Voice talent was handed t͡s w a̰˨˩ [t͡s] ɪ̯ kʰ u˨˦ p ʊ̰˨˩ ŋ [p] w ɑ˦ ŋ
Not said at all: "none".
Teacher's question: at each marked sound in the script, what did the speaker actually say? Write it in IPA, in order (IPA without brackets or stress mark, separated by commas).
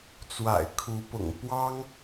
none, p